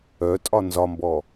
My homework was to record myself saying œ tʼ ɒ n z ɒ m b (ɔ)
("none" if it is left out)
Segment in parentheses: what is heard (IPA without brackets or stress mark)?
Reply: ɔ